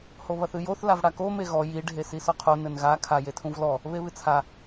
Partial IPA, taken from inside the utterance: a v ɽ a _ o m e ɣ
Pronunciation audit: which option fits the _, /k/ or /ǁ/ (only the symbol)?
k